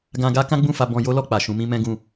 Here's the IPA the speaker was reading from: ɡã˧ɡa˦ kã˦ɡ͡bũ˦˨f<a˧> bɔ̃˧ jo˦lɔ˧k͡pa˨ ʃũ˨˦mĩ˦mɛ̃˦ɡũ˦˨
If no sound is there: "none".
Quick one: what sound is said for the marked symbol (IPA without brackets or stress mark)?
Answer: a˧